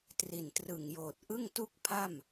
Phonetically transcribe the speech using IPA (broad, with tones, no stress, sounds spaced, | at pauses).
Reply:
t r i˨˩ n t r ɯ˨˩ ŋ j oː˨˩ t̚ ʔ ɯ˥˩ ŋ t u˥˩ k̚ pʰ a˥˩ m